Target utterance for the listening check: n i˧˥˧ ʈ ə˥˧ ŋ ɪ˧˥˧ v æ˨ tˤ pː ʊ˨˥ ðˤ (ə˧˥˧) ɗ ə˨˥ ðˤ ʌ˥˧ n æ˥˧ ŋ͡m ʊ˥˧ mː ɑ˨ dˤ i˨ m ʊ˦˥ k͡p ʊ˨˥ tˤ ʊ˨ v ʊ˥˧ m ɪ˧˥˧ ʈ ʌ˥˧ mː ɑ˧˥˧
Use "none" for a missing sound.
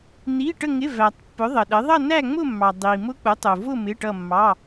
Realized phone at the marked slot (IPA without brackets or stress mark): ə˨